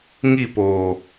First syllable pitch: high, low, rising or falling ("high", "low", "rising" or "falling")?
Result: falling